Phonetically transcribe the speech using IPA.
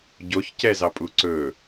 ɟ o ç c ɛ z ɑ pʼ u ǀ ɵ

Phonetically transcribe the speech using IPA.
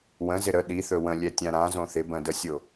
w ə̃ z ɪ ɾ ə ɗ i θ ɵ w ə̃ lʲ ɛ tʲ ã ɾ ã z õ θ ɪ b ə̃ d ə sʲ o

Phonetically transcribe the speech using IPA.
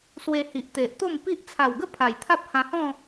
s w e˧ h i˨ ʔ t̪ e˨ ʔ t̪ o˥˧ m p i˦ ʔ t͡sʰ a˨˩ w ɡ ə˥˧ pʰ a˨˩ j t̪ʰ a˦ p̚ h ã˧ h ɔ̃˥˧

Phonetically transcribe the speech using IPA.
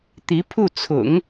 t̪ i˧˥ pʰ u˥˩ t͡sʰ ʊ̰˨˩˦ ŋ

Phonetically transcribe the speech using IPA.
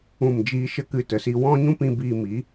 ũ˦˨ m d͡ʒ iː˦ ʃ ə˦ k ɨ˧ t ə˨ s i˧ w ɔ̃˦ ɲ ũ˦ p ĩ˧ b iː˧ m i˨˦

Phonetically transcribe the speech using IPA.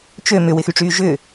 t͡ʃ ø m ʏ w ɪ x y ʈ͡ʂ yː ʒ ʏ

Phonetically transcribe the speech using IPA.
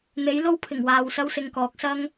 n̪ e˨˥ j l o˥ w pʰ ɪ˨˩ ŋ w aː˨ w s ɐ˥ w s ɪ˧ ŋ k ɔː˨˥ k̚ s ɐ˥ ŋ

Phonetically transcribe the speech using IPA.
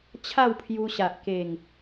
t͡ɕʰ a˥˧ w pʰ j u˧ ɕ a˨ ʔ k e˨˩ ŋ

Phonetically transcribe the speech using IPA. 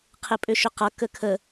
qʰ ɪ pʼ ʏ ʃ ʏ q ʌ k ə kʰ ə

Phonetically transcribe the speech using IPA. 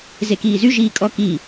z e k iː z y ʒ iː kʼ ɔ k i

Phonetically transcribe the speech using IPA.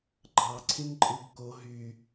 ɡ͡ǃ ɑ ǀʰ ĩ n ǃʼ ɯ b k o ɦ y

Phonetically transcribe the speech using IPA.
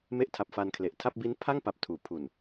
m e˦˥ ʔ tʰ a˨˩ p̚ f a˧ n kʰ l e˨˩ ʔ tʰ a˥˩ p̚ b i˦˥ n pʰ a˥˩ ŋ p a˨˩ p̚ tʰ uː˩˦ pʰ u˨˩ n

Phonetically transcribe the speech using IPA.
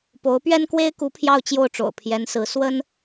p o˧˥ ʊ̯ p ɥ ɛ˥ n k w e˥ ɪ̯ k u˧˥ pʰ j ɑ˥˧ ʊ̯ t͡ɕ j o˥˩ ʊ̯ ʈ͡ʂ o̰˨˩ ʊ̯ pʰ j ɛ˧˥ n s ɹ̩˧˥ s w ə˥ n

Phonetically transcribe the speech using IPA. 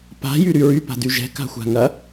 p a̤ j y ɾ y ɹ y p a̤ d y ʒ ɛ̤ k a̤ xʷ a̤ ŋ ɐ

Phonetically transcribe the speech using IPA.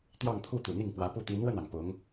t̪ j ɑ˥˧ ŋ pʰ u˥˩ t̪ u˨˩ n̪ i˥˩ ŋ p w ä˧˥ p u˥˩ t̪ i˧˥ n w ə˥˩ n ɑ˩ ŋ p ʊ˧˥ ŋ

